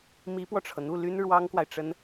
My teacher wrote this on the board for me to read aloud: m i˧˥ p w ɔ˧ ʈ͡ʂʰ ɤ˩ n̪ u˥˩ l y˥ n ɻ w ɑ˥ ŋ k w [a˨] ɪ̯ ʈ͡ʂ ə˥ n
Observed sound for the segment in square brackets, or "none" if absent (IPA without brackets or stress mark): a˨